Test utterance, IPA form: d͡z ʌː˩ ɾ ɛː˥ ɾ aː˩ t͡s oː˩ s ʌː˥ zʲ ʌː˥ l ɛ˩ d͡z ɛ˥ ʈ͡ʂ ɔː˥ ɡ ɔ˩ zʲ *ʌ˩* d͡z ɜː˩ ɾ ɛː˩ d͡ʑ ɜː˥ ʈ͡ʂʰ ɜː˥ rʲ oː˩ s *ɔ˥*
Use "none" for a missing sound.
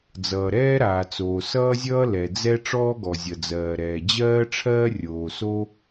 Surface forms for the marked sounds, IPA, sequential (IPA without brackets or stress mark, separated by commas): ʌ˩, o˥